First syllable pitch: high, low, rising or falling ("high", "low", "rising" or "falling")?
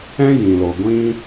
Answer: high